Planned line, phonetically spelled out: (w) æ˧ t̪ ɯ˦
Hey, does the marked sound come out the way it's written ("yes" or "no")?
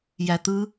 no